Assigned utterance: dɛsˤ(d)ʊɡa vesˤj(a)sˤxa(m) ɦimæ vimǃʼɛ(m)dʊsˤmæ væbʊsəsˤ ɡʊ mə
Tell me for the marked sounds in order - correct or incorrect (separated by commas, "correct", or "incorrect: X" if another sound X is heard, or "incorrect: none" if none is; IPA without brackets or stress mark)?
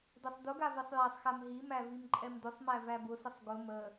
correct, incorrect: æ, correct, correct